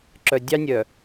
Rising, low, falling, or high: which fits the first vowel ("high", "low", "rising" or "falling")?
low